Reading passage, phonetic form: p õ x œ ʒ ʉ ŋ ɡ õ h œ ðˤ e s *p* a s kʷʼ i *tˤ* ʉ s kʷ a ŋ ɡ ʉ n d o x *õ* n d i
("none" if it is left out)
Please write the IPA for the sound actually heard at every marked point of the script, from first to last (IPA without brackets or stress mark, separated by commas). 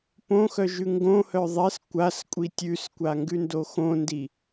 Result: kʷ, tʲ, õ